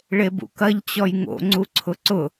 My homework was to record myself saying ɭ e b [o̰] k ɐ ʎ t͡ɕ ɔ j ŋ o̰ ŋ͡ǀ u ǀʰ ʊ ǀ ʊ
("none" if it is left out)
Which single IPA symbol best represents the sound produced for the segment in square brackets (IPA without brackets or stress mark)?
ṵ